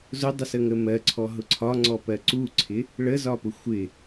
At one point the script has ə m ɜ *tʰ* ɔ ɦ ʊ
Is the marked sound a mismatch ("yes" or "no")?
yes